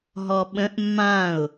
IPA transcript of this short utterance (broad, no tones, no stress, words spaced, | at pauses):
ɦɔɓə̃ʔ mːãʊ̯